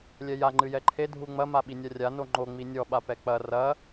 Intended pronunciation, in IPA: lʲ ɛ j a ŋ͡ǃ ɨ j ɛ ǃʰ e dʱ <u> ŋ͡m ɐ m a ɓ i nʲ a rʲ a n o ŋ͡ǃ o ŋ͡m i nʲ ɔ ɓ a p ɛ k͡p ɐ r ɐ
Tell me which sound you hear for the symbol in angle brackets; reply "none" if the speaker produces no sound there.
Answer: u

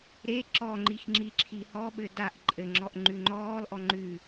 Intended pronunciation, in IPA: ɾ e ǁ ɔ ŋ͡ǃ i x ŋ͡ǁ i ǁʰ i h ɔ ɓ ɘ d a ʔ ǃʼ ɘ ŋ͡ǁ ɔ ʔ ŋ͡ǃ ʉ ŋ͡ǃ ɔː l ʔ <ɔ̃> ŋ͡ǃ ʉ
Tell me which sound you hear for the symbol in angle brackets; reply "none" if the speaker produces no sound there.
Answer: ɔ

